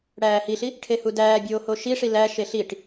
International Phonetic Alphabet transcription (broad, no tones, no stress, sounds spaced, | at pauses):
ɽ æː h i ɬ i | ʈʰ e h u d æː bʲ oː h o ʃ i ʂ i l æ ʃ e ɬ i ʈ